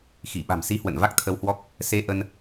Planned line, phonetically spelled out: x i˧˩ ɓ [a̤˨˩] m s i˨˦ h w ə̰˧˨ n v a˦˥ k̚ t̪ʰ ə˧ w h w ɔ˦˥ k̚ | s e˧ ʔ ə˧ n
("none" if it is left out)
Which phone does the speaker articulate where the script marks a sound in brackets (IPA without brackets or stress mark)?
a̤˨˩